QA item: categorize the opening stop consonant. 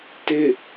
plain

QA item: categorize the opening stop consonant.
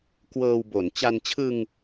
plain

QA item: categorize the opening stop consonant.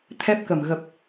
aspirated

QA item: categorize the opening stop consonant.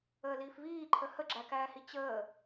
click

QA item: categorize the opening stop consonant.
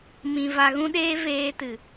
implosive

